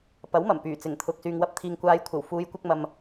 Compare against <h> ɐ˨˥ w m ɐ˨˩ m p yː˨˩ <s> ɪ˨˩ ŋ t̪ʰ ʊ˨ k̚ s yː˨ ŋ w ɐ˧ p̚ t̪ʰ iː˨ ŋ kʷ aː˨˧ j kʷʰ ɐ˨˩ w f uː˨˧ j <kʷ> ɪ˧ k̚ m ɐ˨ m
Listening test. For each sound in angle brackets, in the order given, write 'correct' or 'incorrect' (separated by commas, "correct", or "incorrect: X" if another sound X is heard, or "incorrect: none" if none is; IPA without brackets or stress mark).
incorrect: p, incorrect: t͡s, correct